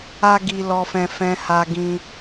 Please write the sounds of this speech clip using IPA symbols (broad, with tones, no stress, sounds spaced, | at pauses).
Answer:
a˦ ɡ i˧ l ɔ˧ f ɛ̃˧ f ɛ̃˧ h a˧ ɡ ĩ˧